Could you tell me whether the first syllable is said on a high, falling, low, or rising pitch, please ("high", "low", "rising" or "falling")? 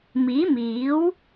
rising